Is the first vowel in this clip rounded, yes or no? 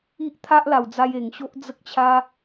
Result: no